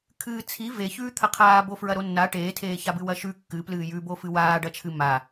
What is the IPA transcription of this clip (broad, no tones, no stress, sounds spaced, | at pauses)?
kʰ ɨː t͡sʰ i v e ç ʉː t̪ʰ ɐ qʰ aː b o f ɹ ɐ ɾ o nː a ʈ eː tʰ eː ç a b ɨ w ɐ ʃ ʉ kː ɨ p l ɨː j ʉ b o f ɨ w aː ɖ ɐ t͡ʃʰ ɨ m a